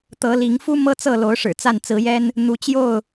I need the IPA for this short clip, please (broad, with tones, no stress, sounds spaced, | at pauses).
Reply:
t̪ ɤ˨˦ l i˨˦ ŋ f u˦ m ɤ˦ t͡s ɤ˥˨ l o˨˦ ʊ̯ ʂ ɻ̩˨˩ t͡s a˥˨ n t͡s ɹ̩˨˦ j ɛ˦ n | n̪ u˨˦ t͡ɕ j o˥˨ ʊ̯